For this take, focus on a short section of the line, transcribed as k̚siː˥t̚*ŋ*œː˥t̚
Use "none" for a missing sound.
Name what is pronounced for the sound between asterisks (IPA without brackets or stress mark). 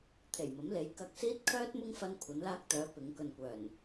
kʰ